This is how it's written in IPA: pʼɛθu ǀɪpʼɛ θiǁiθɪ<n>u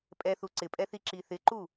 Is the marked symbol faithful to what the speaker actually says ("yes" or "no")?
no